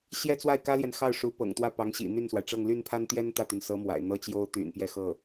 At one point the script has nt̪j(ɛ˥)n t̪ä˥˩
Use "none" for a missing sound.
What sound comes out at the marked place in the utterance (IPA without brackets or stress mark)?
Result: ɛ˥